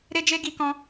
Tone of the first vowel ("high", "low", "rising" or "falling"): high